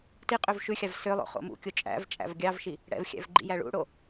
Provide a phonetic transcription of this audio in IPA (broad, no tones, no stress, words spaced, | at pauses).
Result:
ti qʼøvʃʉxʲɑv sø lˠo̰χo̰mṵkʲo t͡ʃʼæ̰vt͡ʃʼæ̰v ɡʲɑvʃi | ɽɛ̰vxʲæ̰v ɡ͡ǃḭjæɭṵɽo